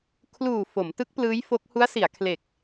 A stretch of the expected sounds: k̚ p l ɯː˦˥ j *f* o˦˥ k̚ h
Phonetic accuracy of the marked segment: correct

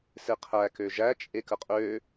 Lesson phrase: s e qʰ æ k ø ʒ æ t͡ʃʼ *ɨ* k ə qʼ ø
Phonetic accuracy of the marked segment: incorrect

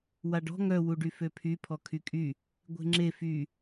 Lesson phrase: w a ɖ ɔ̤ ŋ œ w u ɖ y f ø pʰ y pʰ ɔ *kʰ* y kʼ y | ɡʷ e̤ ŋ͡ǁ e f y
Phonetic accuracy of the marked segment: correct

